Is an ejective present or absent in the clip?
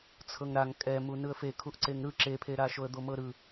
present